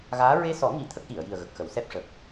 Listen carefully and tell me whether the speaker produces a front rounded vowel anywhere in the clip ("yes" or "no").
no